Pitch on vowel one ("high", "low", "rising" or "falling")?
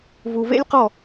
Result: low